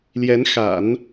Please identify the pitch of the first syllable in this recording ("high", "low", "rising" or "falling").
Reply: rising